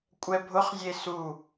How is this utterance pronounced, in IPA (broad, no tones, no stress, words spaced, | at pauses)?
kʷʼɛbʱʊχzʲe su